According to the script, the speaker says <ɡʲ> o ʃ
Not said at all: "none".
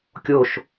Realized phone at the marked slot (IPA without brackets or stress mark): kʲ